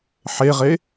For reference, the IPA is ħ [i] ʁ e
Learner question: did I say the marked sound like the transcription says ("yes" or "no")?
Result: no